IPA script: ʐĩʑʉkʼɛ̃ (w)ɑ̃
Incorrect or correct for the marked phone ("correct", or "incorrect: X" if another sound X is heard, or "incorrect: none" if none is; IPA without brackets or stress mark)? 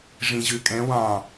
correct